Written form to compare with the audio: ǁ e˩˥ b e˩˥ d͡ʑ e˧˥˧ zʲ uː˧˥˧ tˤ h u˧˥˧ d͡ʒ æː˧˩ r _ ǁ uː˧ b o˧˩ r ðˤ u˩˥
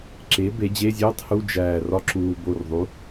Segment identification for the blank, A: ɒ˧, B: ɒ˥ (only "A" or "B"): B